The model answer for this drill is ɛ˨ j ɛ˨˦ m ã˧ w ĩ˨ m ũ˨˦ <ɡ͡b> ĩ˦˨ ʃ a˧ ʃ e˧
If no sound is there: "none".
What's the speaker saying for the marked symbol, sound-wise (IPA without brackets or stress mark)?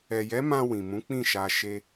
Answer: k͡p